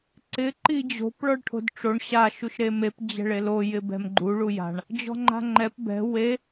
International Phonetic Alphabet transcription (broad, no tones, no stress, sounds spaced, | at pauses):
ǀ ɪ ǃ i d͡ʑ o̤ p ɭ ɔ ɭ ʈʰ o̤ d ʈ͡ʂ o ɳ ɕ a ʃ u ʃ ɾ e m e p d͡ʑ ɛ̤ ɭ e l o j ɪ b ɛ̤ m ɡ͡ǃ u ɭ u j a̤ ɳ | d͡ʑ ɔ̤ ŋ͡ǃ a̤ ŋ͡ǃ ɛ p b ɛ̤ w e